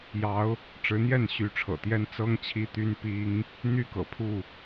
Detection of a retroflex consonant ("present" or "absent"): present